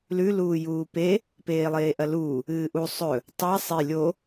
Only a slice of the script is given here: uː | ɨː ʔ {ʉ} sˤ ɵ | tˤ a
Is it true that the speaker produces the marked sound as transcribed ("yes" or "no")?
no